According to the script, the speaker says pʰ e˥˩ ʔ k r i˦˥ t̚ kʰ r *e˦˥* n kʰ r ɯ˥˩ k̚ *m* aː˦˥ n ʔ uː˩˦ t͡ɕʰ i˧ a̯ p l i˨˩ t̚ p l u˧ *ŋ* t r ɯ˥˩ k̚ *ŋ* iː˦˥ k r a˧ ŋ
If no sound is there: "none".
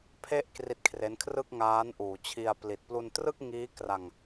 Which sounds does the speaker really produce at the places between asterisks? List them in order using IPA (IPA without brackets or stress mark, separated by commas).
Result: e˦˥, ŋ, n, ŋ